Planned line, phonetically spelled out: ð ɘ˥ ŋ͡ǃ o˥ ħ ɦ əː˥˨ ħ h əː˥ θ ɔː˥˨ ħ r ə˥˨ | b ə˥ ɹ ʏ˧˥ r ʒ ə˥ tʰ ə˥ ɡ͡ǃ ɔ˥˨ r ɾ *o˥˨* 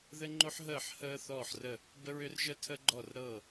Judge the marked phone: incorrect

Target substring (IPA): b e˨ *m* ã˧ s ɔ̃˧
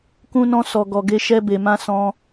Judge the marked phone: correct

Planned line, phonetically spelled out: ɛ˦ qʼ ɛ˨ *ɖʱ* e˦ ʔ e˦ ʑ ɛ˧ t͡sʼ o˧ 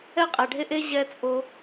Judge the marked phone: correct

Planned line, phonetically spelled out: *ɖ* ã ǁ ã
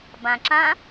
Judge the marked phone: incorrect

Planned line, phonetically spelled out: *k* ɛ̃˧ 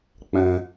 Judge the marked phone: incorrect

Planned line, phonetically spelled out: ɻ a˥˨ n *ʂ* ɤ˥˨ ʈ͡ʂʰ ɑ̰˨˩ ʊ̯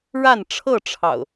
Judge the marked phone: incorrect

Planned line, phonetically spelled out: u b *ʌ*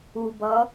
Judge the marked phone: correct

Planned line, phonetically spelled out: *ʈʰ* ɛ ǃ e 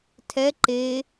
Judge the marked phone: incorrect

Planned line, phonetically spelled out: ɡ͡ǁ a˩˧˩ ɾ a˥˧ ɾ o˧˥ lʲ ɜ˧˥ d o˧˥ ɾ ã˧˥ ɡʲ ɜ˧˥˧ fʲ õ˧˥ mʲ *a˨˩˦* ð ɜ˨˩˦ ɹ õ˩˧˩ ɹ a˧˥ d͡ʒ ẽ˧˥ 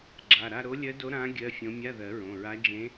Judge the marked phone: incorrect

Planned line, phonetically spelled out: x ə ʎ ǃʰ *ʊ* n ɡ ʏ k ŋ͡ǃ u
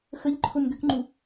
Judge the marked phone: correct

